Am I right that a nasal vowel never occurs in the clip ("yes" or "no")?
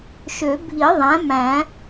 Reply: no